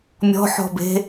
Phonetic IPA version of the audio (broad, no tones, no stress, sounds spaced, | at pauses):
mʲ ɔ̤ ħ ɔ̤ b e̤